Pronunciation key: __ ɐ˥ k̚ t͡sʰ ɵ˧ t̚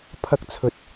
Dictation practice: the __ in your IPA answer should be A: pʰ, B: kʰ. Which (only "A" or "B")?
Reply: A